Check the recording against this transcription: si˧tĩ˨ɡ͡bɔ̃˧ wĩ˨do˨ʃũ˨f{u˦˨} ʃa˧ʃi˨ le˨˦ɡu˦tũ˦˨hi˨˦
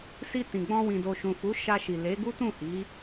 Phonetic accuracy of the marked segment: incorrect: u˨˦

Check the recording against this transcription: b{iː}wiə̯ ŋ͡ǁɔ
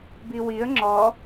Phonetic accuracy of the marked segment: incorrect: i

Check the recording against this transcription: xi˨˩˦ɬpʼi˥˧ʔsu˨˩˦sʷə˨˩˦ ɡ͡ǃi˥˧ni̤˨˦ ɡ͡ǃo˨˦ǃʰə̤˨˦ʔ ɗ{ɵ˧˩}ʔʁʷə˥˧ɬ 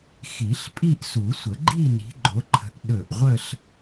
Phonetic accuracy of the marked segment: correct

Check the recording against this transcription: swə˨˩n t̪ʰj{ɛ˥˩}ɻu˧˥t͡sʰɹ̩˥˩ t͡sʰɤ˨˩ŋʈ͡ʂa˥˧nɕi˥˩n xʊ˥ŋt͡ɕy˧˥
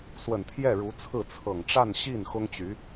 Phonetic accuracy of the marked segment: correct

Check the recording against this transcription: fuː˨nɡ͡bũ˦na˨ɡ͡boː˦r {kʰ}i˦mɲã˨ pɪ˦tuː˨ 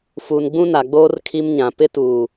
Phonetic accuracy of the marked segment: correct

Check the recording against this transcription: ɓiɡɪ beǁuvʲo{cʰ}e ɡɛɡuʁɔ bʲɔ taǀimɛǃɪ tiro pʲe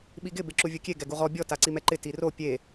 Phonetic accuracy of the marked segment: incorrect: kʲ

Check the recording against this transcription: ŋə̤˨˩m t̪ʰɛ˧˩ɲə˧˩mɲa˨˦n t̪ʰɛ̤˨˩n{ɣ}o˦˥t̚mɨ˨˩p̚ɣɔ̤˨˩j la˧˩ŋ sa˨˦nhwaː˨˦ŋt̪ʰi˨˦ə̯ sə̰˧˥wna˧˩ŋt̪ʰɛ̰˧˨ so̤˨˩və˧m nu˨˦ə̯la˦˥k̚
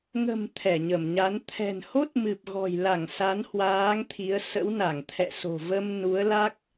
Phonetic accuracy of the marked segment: incorrect: h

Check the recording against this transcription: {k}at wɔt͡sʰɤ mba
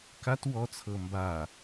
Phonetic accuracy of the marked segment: correct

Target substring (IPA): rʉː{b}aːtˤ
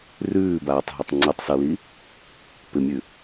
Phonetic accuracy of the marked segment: correct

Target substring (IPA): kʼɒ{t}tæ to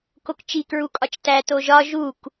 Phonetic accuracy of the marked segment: incorrect: t͡ʃ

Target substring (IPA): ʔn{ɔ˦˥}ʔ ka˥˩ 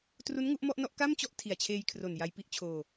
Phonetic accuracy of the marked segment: incorrect: ɔ˥˩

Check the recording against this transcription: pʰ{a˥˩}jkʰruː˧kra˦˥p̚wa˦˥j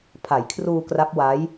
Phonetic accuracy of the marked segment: incorrect: a˩˦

